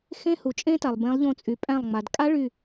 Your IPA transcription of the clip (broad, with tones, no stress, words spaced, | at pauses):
xẽ˦˥hu˩t͡ʃʼẽ˦˥ta˩lˠ bẽ˨˦lˠʎõ˧˩t͡sʼy˩ pʼæ̃˧˩lˠŋ͡ma˩d kʼa˦˥ɭy˧˩